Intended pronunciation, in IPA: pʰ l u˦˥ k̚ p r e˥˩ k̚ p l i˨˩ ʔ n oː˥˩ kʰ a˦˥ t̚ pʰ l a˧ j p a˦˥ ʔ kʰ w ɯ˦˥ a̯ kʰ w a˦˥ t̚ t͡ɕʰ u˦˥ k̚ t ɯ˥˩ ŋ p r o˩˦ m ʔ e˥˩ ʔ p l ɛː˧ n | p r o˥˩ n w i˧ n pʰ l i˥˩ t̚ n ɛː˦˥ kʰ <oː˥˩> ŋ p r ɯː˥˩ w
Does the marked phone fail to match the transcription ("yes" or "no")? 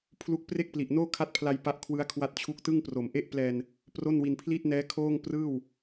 no